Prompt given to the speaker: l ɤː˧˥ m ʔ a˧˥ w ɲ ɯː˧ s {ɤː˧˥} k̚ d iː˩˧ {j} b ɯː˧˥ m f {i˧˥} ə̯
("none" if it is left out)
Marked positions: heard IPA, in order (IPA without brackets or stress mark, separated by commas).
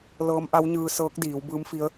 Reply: ɤː˧˥, w, i˧˥